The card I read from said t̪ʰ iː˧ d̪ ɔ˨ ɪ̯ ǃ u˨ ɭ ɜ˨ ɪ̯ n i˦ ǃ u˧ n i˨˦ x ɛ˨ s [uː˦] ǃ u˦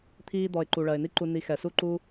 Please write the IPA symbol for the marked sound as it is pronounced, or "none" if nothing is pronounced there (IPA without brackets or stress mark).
u˦